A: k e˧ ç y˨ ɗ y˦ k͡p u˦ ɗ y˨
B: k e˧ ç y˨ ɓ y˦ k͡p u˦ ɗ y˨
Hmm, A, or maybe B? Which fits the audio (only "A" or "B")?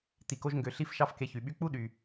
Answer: B